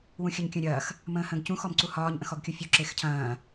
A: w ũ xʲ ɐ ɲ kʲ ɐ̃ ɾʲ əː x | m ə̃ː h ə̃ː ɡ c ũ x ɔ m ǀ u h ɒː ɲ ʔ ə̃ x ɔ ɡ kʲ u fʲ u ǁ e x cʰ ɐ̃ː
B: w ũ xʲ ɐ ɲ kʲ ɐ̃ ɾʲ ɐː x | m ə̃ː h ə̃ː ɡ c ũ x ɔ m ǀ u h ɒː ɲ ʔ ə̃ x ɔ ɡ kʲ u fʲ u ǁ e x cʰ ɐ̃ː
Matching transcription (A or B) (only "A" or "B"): B